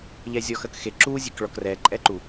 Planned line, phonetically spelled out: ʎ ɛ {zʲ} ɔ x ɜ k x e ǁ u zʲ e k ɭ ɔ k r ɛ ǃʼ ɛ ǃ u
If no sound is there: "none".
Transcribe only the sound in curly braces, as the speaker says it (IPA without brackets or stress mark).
zʲ